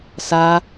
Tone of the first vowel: high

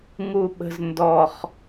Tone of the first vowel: low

